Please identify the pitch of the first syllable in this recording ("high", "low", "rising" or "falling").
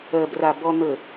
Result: low